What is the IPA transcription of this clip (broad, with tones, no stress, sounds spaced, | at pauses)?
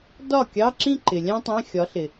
d ɒ˥˩ kʲ ɑ˧˥˧ ǁ ĩ˥˧ ǃ ɪ˨ lʲ æ̃˥ tˤ æ̃˧˥˧ xʲ ɒ˨˥ ɬ ɪ˨